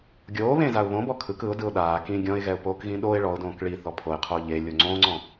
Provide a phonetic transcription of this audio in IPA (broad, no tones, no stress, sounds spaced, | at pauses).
ɡʲ oː β ẽ z a ʊ̯ β õ b ɔ kʰ ɯ k ɯ ʊ̯ d ɯ ʊ̯ ɗ aː k ĩ ɡʲ ɔ̃ ɪ̯ ɣ ɛ ʊ̯ p oː k ɣ ĩ ɗ o ɪ̯ ɭ ɔ ʊ̯ d õː k ɭ i θ ɔ pʰ o ɪ̯ qʰ oː ʎ e lʲ o ŋ͡ǀ õː ŋ͡ǀ ɔ̃